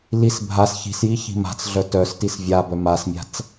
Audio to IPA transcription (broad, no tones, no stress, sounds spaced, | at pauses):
l i s bʱ a s ç i̤ s j i ç i̤ m a̤ t͡s ɮ œ t œ s t i s vʲ a b œ m a s mʲ a̤ t͡s